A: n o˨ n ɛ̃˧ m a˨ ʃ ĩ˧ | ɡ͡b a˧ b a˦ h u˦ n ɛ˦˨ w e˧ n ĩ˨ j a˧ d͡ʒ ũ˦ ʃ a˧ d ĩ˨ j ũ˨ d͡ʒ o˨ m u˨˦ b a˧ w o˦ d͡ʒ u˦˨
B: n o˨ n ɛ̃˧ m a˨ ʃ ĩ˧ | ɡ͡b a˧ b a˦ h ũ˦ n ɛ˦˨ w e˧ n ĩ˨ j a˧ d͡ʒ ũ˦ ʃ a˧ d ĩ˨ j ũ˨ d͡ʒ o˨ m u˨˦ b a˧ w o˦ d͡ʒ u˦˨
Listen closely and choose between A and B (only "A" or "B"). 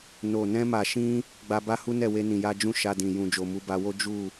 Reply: A